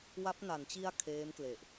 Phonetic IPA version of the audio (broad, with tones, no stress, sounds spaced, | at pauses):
w a˦˥ p̚ n a˩˦ n t͡ɕ i˧ a̯ kʰ eː˦˥ m k l e˨˩ ʔ